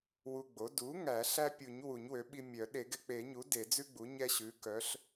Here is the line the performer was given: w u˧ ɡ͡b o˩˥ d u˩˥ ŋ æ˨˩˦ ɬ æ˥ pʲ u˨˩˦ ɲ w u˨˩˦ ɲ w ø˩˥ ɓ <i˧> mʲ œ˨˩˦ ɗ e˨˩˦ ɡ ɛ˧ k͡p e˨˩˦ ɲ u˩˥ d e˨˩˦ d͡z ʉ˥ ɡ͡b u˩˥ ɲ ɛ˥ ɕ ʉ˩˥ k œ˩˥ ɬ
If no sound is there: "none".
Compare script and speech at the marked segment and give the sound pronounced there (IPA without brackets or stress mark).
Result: i˧